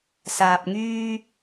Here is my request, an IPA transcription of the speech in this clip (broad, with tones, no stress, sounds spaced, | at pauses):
s aː˨ p̚ ŋ yː˧